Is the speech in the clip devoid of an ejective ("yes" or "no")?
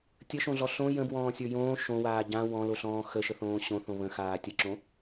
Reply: yes